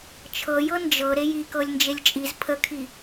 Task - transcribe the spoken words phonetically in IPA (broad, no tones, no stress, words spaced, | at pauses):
t͡ʃʰɤjɤ nd͡ʒɤ ɾejikɤlʲ nd͡ʒelʲt͡ʃʼiz pʰəkʰi